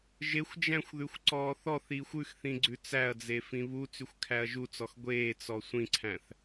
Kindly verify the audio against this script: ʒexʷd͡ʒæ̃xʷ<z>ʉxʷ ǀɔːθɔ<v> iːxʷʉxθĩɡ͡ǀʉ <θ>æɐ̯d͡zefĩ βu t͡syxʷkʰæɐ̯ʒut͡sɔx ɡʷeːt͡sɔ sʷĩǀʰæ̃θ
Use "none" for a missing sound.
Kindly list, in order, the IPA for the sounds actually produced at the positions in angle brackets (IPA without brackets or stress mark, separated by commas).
ð, θ, t͡s